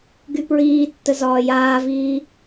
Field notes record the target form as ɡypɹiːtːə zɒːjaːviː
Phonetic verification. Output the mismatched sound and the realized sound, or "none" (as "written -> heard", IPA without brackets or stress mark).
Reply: none